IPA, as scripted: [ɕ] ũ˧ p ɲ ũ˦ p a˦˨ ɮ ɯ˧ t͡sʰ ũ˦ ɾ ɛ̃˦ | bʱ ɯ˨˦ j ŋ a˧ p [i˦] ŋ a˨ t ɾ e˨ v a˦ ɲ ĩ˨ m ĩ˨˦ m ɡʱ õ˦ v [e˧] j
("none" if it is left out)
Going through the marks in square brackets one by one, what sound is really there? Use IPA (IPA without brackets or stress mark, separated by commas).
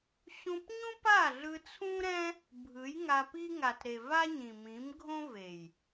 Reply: ɕ, i˦, e˨